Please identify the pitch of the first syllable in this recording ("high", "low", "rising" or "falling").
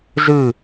falling